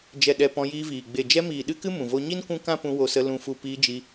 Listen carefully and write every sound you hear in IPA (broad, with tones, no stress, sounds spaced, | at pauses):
d͡ʒ ɛ˨ ɗ ɛ˨ p ɔ̃˧ j iː˧ v iː˨ ɡ͡b e˨ d͡ʒ ɛ˧ m iː˨ ɗ ɨ˦ k ɨ˦ m ũ˨ v o˧ ɲ i˦ n kʷ ũ˦ k ã˦ p ũ˧ w o˧ s ə˧ l ũ˧ f u˧ p iː˧ d͡ʒ i˧